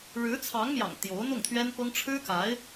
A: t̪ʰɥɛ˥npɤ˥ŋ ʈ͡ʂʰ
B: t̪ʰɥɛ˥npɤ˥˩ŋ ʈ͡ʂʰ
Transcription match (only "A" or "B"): A